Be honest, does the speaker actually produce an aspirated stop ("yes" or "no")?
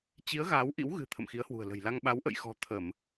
yes